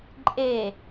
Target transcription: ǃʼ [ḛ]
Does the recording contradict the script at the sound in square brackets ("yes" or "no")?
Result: yes